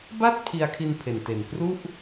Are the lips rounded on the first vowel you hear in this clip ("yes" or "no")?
no